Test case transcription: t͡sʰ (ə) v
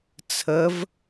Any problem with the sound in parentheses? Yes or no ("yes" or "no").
no